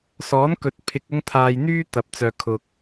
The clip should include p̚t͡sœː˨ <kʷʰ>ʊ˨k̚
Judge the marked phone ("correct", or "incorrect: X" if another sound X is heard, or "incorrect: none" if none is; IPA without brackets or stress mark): incorrect: kʰ